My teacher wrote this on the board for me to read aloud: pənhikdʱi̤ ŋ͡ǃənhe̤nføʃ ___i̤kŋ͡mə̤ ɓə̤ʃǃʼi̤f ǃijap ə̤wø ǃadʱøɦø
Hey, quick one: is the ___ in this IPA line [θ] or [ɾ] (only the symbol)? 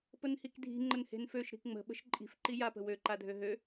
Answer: ɾ